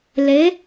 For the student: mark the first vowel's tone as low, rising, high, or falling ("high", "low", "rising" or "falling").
rising